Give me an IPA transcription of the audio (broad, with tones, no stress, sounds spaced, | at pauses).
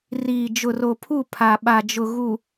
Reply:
r iː˨ d͡ʒ ʊ˨ r o˨ pʰ u˦˨ pʰ a˨ ɓ a˨ d͡ʒ ʊ˨ ɣ u˨